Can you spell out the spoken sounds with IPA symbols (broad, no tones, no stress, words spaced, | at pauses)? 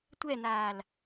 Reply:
tʷɛn̪aːl